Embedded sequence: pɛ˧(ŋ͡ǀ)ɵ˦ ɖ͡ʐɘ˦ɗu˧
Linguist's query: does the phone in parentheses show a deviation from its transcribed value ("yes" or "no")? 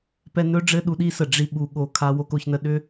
yes